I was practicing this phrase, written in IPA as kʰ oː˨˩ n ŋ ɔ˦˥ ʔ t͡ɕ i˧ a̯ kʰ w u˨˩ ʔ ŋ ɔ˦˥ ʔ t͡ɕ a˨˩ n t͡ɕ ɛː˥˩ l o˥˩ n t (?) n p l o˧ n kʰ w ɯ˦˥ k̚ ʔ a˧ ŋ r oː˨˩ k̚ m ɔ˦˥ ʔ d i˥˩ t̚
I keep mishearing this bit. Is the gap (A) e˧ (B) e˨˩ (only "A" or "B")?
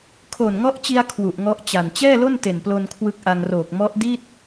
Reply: B